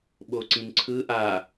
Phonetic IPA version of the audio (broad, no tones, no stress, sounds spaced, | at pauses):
ɓ o ǀ ĩ n ǀʰ ɯ ʔ a